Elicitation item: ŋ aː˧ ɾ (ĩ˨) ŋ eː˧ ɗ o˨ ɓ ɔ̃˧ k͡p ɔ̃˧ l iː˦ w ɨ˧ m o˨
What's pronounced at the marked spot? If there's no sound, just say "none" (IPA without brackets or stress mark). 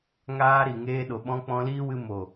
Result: i˨